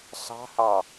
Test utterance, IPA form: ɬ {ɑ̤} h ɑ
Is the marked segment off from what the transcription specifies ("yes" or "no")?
no